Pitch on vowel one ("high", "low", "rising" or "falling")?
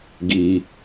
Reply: low